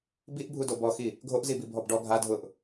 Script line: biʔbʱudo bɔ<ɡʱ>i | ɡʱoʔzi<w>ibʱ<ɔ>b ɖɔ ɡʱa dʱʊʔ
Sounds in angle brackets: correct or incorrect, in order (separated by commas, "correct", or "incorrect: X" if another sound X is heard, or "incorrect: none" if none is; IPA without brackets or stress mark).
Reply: incorrect: x, incorrect: b, correct